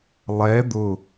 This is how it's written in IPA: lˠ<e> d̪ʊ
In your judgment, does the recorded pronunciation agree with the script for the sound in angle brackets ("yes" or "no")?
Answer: no